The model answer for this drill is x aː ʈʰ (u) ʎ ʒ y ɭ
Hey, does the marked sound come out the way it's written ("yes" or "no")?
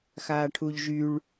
yes